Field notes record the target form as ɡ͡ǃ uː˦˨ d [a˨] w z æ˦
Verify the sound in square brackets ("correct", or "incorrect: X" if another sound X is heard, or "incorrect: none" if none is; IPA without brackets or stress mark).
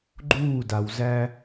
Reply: correct